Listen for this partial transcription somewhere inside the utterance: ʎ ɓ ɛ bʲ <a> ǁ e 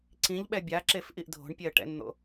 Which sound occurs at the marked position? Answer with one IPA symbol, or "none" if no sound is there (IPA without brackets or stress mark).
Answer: a